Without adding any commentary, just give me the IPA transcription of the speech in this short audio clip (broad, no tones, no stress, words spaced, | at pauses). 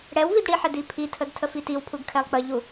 ɽɛw vidɽiħɛd ipʰitʰəd tʰəfitiwpʰuɡ kʰɛlˠk͡pəʎu